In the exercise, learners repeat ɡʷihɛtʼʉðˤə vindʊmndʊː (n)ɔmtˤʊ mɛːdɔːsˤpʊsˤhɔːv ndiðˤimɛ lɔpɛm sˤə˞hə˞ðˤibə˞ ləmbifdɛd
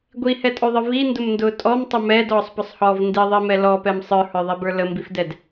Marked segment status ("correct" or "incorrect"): incorrect